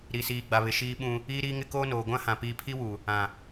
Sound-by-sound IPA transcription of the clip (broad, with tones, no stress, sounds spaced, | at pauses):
ɾ i˨ s iː˨ ɡ͡b a˨ β ɪ˨ ʃ iː˦ ɓ ũ˦ | iː˦ ɾ iː˦ ŋ ɪ˦ k oː˦ n oː˨ ɡʷ ã˦ h ã˨ p iː˨ pʰ i˦ w u˨ | ã˨